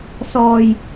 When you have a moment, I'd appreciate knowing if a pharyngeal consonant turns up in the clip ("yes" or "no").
no